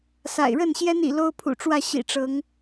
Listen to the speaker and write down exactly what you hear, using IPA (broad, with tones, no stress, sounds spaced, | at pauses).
s a̰˨˩ ɪ̯ ɻ ə˥˨ n ɕ j ɛ˦ n ḭ˨˩ l o˦ ʊ̯ pʰ ṵ˨˩ ʈ͡ʂ w ä˥˨ ɕ ḭ˨˩ ʈ͡ʂ ɤ˨˦ ŋ